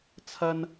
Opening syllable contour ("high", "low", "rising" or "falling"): high